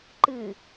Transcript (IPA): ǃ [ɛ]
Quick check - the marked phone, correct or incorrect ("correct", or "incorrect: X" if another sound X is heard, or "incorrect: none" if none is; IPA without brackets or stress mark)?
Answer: incorrect: ɨ